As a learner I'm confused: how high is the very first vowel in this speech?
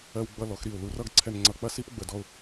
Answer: mid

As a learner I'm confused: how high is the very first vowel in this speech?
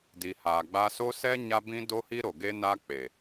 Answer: high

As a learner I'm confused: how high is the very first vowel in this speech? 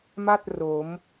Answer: low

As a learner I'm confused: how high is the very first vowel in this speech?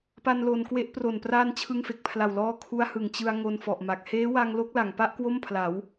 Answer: low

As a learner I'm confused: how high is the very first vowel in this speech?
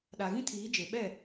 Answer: low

